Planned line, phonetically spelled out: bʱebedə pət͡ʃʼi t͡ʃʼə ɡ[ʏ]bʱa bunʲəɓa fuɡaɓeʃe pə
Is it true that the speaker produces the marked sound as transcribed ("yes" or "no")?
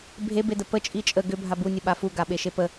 yes